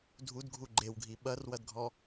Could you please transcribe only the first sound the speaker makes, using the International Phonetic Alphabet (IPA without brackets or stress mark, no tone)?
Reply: dʱ